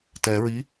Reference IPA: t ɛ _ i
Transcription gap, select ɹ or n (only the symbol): ɹ